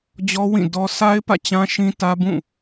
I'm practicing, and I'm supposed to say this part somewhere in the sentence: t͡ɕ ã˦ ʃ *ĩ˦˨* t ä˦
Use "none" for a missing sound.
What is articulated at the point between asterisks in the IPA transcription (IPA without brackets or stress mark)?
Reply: ĩ˦